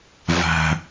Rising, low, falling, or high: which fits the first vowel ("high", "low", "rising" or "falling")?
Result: low